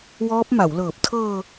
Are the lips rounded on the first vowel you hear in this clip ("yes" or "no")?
yes